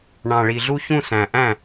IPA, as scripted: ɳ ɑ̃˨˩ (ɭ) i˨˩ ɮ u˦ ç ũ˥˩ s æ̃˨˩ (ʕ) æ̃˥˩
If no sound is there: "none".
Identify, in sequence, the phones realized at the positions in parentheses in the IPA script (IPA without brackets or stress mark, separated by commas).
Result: ɭ, ʔ